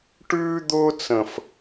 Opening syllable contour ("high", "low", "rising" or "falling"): high